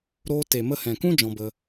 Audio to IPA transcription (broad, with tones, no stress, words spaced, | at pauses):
ɾoː˧ te˨mə˧hɛ̃˨kũ˦ d͡ʒɔ̃˧bə˧